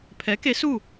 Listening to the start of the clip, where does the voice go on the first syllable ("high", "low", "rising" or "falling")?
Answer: rising